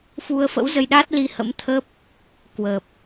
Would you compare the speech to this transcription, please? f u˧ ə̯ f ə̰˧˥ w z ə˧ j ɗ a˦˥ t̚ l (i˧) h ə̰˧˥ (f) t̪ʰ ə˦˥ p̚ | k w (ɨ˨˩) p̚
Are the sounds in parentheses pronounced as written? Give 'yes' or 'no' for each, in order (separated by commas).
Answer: yes, no, no